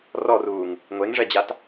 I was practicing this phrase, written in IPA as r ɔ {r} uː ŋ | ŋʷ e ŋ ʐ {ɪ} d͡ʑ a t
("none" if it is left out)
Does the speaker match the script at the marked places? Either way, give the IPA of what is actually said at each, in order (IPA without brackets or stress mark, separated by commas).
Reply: r, ɛ